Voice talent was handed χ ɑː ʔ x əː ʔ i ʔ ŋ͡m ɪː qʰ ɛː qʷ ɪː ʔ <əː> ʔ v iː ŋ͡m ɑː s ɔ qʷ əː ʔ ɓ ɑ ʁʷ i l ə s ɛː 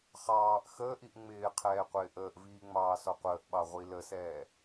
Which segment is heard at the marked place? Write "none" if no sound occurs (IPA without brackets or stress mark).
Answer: əː